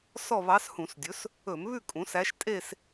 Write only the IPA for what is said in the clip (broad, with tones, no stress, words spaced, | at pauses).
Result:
sɔ˥˧βɑ˧˥s hũ˧˩˧sdʲɵ˩˥s | ɵ˧˩˧mβʉ˥˧ kʼũ˩˥sæ˧˥ʃ tʼe˥˧s